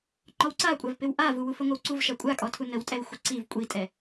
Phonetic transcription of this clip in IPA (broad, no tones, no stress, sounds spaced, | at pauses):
ŋ͡ǃ ɔ w ǀ a kʷʼ a v p ɪ w ʔ a v u w u f ə ŋʷ ə w ǀ u v ʃ a kʷʼ a kʼ ɔ tʰ u n ə w tʼ ɛ w xʷ ɪ ǀ i v kʷʼ i tʼ ɛ